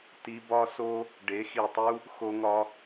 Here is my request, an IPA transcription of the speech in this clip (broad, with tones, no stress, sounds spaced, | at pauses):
t i˧ b ɒ˦ s o˦ | ɖ e˨˦ x i˨ tˤ u˦ | x o˧ ŋ ɒ˧